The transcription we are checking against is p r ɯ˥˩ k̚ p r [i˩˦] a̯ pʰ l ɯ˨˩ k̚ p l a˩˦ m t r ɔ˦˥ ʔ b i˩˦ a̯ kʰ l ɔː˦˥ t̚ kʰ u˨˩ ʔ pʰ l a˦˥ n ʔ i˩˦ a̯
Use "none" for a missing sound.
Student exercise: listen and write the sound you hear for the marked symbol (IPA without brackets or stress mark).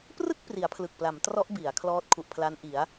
i˩˦